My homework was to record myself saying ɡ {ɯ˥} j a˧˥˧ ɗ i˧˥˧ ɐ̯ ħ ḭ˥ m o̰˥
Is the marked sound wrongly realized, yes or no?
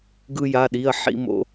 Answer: no